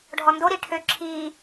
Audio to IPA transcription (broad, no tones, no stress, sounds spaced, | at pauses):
ɖʱ ɔ n d o ɾ i ʈʰ ø ǁʰ iː